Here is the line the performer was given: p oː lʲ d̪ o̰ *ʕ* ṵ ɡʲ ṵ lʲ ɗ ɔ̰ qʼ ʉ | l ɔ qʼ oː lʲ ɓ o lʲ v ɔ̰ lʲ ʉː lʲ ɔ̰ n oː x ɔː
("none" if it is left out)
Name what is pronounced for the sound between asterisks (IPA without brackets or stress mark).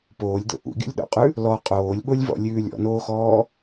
ʔ